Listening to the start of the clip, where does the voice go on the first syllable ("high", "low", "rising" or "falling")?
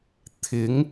rising